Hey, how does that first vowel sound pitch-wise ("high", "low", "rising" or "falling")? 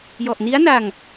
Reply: low